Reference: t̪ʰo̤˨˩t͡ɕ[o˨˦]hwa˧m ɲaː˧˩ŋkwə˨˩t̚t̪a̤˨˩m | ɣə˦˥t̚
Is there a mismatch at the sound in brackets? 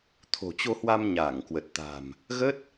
yes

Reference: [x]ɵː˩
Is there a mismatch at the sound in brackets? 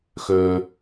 no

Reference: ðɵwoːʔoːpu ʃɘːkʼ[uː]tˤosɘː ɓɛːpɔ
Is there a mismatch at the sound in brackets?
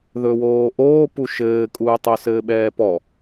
no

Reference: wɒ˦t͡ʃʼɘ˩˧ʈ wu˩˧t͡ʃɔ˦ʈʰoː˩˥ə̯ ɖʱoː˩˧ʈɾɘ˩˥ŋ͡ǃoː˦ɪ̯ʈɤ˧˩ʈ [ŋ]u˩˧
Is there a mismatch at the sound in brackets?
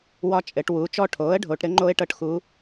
yes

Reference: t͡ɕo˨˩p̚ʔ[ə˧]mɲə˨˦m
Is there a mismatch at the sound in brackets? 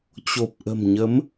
yes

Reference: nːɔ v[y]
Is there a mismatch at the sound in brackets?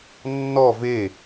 yes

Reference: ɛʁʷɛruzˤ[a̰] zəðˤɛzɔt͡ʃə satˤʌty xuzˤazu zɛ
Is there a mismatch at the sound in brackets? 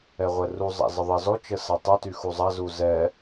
no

